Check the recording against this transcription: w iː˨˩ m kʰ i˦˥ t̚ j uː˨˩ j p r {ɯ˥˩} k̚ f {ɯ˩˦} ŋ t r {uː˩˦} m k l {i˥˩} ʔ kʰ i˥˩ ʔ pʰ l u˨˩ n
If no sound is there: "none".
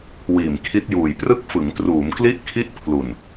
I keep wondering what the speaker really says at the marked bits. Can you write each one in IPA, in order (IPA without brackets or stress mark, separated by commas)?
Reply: ɯ˥˩, ɯ˩˦, uː˩˦, i˥˩